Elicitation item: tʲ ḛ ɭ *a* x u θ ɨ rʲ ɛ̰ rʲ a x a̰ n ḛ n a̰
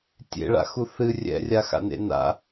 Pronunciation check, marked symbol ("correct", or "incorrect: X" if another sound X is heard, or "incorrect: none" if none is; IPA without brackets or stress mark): incorrect: a̰